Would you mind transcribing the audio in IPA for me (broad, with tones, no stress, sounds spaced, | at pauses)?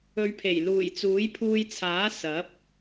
ɵ˨˧ ɥ pʰ e˨˩ j l uː˨˩ j t͡s uː˨˥ j pʰ uː˧ j t͡sʰ aː˨˥ s ɐ˨˥ p̚